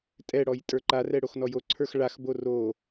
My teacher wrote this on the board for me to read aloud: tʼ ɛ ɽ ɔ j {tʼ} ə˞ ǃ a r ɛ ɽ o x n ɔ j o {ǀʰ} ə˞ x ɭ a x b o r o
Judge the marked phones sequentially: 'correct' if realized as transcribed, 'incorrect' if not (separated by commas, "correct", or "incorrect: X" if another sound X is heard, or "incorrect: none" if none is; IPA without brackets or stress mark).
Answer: correct, correct